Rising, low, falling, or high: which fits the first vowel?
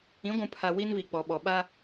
rising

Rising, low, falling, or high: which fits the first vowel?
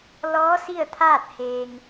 rising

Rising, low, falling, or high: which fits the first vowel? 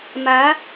rising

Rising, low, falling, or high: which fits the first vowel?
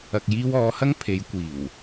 low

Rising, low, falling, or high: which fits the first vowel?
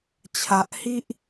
low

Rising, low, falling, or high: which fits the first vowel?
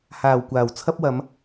low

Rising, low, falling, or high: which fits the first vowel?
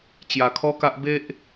low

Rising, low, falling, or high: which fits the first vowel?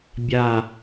falling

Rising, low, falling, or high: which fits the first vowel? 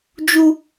high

